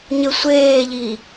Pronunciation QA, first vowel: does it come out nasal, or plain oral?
oral